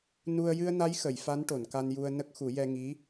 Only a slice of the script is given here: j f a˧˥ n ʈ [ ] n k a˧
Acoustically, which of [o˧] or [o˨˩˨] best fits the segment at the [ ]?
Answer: o˨˩˨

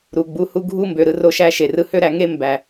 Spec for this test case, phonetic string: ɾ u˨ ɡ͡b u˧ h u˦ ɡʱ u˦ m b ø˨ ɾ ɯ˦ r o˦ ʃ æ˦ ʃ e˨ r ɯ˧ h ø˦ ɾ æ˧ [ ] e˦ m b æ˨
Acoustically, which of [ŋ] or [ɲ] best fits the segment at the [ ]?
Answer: ŋ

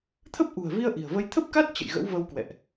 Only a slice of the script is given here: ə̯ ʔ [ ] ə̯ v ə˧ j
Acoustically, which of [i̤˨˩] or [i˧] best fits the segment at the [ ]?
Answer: i̤˨˩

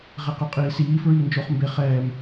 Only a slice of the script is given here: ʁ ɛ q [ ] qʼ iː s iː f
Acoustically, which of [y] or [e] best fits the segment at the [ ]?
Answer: y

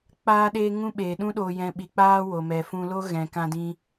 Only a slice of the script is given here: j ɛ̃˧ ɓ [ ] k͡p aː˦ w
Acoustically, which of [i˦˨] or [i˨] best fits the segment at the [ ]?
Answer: i˨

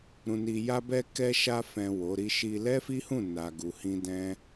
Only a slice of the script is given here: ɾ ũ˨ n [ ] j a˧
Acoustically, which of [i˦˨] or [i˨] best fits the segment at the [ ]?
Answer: i˨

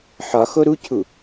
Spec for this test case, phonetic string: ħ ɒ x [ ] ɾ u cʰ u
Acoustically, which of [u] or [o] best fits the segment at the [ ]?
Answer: o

